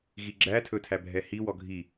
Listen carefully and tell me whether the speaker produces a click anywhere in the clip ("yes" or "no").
yes